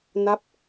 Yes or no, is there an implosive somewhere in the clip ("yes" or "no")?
no